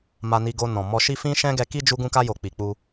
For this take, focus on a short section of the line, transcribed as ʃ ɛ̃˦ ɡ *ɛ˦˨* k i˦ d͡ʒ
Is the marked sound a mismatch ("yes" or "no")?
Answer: yes